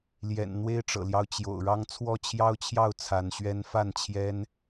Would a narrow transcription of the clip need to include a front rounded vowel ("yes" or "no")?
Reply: no